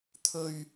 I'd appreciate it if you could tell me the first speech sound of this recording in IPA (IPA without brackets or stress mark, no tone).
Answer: t̪ʰ